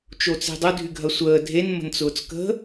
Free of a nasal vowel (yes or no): yes